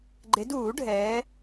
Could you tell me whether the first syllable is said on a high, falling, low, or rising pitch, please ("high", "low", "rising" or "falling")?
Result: rising